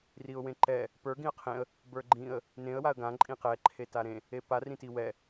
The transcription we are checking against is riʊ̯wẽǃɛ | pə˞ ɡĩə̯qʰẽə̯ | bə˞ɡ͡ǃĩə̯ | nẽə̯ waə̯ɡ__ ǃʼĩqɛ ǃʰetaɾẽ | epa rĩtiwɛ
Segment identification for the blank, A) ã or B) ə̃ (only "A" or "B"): A